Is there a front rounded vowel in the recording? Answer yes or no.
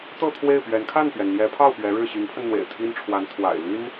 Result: yes